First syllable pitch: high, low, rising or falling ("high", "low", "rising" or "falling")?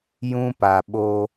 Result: high